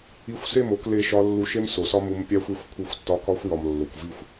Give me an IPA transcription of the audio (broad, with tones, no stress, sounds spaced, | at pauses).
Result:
i˧ xʷ s e˦˨ m o˧ k l e˧ ʃ ɒ˧ lː u˧ ʃ e˦ m s o˨ s ɒ˦ m u˧ m pʲ æ˦ xʷ i˧ xʷ kʷʰ i˧ xʷ tː ɒ˧ k ɒ˧ xʷ j ɒ˨ m lː o˨ kʷ v i˦˨ xʷ